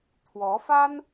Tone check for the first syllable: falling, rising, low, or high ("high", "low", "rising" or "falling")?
rising